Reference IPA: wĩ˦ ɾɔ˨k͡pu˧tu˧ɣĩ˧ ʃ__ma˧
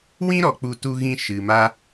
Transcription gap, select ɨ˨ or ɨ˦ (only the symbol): ɨ˨